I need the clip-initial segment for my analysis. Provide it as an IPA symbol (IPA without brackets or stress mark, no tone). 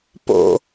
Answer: p